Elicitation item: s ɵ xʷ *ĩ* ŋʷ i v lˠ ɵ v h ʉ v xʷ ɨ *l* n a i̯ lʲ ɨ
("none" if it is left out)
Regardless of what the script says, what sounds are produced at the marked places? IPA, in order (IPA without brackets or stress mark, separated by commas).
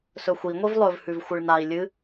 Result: i, ɭ